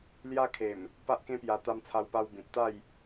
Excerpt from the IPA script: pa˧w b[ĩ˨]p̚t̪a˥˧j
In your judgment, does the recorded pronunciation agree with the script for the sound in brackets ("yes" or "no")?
yes